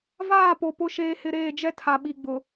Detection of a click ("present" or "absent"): absent